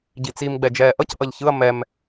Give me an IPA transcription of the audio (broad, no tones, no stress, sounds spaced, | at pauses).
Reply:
ɟ i t͡s i m ɡ͡b ɛ d͡ʒ ɛː ʔ ʌ c ʔ ʌ ʎ ç ɯ ɐ̯ m ɛ m